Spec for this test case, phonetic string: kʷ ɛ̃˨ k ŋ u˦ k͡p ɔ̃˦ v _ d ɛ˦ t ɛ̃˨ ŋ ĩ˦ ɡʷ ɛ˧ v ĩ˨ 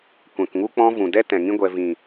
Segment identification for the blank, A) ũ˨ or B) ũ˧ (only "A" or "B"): A